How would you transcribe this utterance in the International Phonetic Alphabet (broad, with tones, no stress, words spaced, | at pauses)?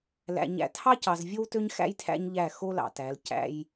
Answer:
læ̰˨ ɲæ̰˨tʰɑ˦cɑ˨z vʲo˦wtø˦ɲxæ̰˦j tʰæ̰˦ɲʎæ˦˨ xo˦lɑ̰˨tæ˨˦l cæ̰˦j